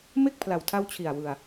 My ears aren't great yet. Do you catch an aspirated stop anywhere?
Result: yes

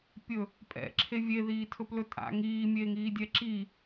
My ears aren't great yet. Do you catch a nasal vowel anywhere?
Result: no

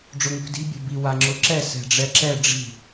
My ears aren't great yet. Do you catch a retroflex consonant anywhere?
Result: yes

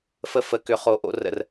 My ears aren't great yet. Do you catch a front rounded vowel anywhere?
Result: yes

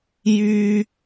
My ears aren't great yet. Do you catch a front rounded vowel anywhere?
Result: yes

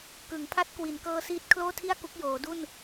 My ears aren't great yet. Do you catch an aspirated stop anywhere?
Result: yes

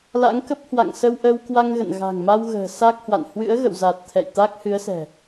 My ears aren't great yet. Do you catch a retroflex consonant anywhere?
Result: no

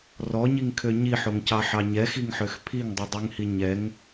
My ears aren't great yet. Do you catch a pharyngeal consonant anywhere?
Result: yes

